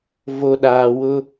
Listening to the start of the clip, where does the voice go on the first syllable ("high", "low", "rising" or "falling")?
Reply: low